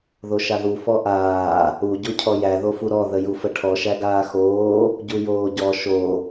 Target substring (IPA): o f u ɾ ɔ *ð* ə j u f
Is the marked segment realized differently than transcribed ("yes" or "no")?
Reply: no